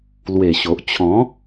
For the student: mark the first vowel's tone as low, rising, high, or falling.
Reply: low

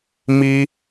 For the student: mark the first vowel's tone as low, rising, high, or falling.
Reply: high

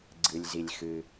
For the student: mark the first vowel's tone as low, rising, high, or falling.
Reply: low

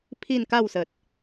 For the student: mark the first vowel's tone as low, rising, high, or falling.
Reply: falling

